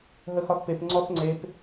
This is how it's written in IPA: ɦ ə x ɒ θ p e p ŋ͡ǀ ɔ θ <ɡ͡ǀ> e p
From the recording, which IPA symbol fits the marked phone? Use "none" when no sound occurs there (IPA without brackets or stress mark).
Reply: ŋ͡ǀ